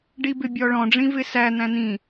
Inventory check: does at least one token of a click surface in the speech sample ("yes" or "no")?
no